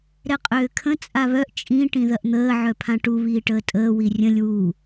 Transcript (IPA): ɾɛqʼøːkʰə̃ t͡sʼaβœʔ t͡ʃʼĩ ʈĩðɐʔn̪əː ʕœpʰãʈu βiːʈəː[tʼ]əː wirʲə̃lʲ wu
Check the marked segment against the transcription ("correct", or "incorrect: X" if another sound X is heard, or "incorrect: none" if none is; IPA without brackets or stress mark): correct